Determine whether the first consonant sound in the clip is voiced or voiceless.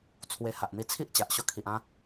voiceless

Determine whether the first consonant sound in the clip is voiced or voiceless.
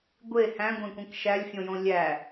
voiced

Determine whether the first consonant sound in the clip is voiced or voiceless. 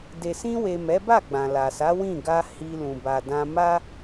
voiced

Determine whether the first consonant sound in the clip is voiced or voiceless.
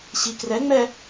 voiceless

